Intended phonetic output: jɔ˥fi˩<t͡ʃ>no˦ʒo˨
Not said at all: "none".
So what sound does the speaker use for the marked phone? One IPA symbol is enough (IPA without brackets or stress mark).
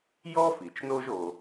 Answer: t͡ʃ